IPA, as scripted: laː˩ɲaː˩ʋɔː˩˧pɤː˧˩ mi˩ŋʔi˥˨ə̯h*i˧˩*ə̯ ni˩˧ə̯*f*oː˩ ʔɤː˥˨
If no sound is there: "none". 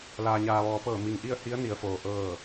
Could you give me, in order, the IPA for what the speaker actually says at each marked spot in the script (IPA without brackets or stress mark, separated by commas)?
i˧˥, f